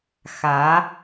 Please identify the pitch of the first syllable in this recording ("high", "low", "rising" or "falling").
rising